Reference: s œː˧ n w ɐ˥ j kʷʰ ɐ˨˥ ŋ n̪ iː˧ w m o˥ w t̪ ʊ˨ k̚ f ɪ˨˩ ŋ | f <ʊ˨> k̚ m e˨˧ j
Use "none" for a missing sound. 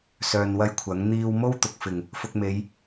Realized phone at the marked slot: ʊ˧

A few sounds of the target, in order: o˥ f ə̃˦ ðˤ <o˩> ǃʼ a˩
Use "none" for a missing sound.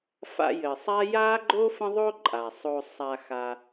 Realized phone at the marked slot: o˦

